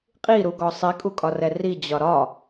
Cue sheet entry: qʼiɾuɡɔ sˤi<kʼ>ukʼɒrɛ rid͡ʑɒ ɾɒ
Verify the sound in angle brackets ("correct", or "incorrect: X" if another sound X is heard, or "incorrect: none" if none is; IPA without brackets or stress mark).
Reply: correct